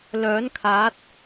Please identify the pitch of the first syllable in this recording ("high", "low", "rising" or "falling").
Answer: rising